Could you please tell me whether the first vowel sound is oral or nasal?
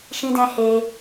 nasal